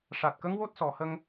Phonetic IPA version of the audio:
ʂ a˨˩ t̚ k ə˧˥ ŋ w o˦˥ t̚ s ɔ˨˩ h ə˧ ŋ

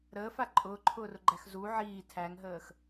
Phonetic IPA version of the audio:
ɾ əː f a ǃʼ ʊː ǃʰ ʊː r ʊ ɡ͡ǃ æ x z u ʕ iː tʰ æ ŋ ɦ əː x

